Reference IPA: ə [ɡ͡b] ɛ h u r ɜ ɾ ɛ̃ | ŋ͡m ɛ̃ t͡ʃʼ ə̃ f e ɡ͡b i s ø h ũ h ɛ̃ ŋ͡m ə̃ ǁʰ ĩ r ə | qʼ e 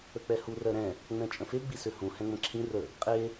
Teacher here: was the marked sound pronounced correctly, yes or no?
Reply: no